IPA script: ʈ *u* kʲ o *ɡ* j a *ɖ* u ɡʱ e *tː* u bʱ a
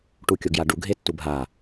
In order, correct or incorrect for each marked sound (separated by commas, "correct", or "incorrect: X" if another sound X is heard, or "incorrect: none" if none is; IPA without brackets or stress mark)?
correct, correct, correct, correct